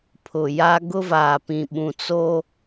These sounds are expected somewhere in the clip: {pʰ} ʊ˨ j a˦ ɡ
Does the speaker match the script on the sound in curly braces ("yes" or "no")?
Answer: yes